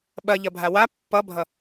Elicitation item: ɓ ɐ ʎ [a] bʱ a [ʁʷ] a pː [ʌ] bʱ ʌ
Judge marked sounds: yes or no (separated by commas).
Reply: no, no, yes